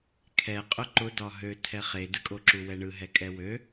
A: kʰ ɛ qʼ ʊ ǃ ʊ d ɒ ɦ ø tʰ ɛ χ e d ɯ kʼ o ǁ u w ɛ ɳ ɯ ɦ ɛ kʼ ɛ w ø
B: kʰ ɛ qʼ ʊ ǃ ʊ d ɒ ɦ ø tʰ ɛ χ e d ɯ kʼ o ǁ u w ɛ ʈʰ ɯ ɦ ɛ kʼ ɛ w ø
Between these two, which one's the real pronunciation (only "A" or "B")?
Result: A